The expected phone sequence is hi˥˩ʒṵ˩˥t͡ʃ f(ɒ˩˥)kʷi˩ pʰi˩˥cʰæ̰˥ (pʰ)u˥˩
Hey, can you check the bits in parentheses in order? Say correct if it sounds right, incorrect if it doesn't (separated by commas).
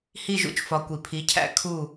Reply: correct, incorrect